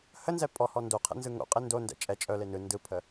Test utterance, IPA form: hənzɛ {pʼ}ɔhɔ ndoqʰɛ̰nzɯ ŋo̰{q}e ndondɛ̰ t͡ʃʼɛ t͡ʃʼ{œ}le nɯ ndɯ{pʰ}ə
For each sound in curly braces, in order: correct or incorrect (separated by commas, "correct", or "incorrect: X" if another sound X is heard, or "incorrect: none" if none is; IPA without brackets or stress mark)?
correct, incorrect: qʼ, correct, correct